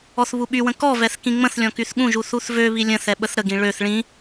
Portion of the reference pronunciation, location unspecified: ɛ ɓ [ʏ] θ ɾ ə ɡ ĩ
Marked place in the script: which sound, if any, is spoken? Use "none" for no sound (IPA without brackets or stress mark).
ə